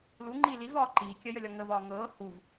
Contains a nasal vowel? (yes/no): no